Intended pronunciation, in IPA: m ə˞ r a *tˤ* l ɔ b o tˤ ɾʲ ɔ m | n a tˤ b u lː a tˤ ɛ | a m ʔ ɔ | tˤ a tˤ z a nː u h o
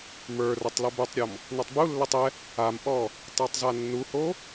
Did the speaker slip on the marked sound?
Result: no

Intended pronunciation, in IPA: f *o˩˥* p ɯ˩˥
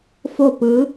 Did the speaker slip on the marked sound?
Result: yes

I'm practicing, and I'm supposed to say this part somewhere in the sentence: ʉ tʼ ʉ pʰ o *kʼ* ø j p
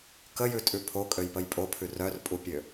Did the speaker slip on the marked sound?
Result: no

